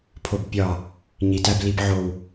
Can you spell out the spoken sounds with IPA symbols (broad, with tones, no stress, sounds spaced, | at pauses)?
pʰ o˧˩ b pʲ ɒ˧˩ | ɲ i˩˧ t æ˧ b l i˧ b ʕ o˧˩ w